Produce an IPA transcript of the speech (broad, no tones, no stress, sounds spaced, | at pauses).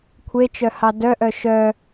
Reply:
kʷʰ e t͡ʃ œ h ɑ d œ ʔ œ ʃ œ